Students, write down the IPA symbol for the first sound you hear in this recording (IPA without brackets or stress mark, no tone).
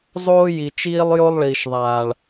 zˤ